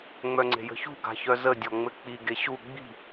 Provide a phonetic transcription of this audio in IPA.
ŋ͡mœŋ͡ǀe̤jə̤çṳ ɡa̤çœzə dʲɔŋ͡mɘk͡pi ɡeɕu ɡ͡bi̤

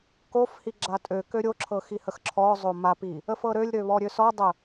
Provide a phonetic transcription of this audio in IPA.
kofhi ɡ͡ǁatʼøkø ɾʲoǁʰɤ xihəxǁʰɔzˤo mapi | əfɤɾølʲɾø βɔɾʲøsɔdˤə

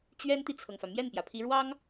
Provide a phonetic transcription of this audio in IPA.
t͡ɕɥɛ˥nt̪i˨t͡sʰɤ˩ŋfä˩ mjɛ˥˩npjä˩ pʰi˧˥ɻwɑ˥ŋ

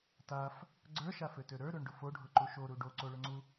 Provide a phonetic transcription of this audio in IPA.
taf | ɡ͡ǀə˞ʃaføtø ɾə˞ɾøɳɖʊ foɖʱʊǃu ʃoɾu ɖoǀoɭʊŋ͡ǀu

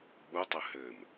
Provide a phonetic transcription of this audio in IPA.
ɓutˤɘ hɘm

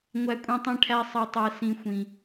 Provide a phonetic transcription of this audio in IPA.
ŋʷæ˧kʷʼĩ˧tˤĩ˧ʈʰæ˧ sˤɛ˧tˤɛ˧sĩ˧ xʷĩ˧

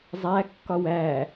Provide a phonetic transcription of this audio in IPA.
zˤæ kːɒwæ

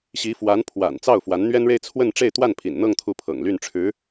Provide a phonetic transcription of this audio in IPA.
ɕi˧˥fwa˧˥n pʰwa̰˨˩n t͡sɑ˥˩ʊ̯fwa˧˥n n̪ɥɛ˥nɻe˥˧ɪ̯ t͡sʰwə˥˧n ʈ͡ʂe˥˧ɪ̯t̪wa˥˩npʰḭ˨˩nn̪ɤ˥˧ŋ t̪ʰu˥˩pʰɤ̰˨˩ŋ ly˥˩nʈ͡ʂʰɻ̩˧˥

